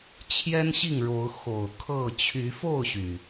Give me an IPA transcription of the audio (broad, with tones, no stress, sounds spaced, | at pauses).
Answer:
t͡ɕʰ j ɛ˦ n ɕ i˥˨ ŋ ɻ o˨˦ ʊ̯ x o˨˩ ʊ̯ kʰ ɤ˥˨ t͡ɕʰ y˨˦ f o˥˨ ʊ̯ ɕ y˩